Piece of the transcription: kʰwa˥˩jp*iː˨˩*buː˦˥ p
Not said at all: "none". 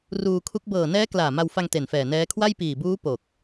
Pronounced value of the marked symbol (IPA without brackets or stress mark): iː˨˩